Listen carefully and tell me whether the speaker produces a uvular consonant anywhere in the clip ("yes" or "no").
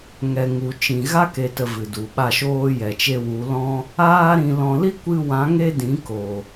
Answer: no